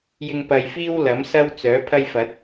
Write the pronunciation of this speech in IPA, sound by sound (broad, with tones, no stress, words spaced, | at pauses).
jɪ˧ŋpɐ˨jfiː˥w lɐ˨˥msɐ˥wt͡sœː˨˥pʰɐ˥j fɐ˨˥t̚